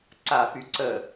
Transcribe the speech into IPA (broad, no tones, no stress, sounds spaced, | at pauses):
ǀ a f y ǀ ə